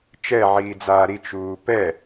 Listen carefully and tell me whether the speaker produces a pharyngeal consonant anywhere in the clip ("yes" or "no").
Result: yes